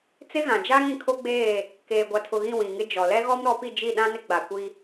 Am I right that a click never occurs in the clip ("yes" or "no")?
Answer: yes